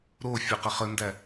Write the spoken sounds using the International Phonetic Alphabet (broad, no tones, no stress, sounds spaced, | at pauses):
ɾ o fʲ o q ə χ ə n d æ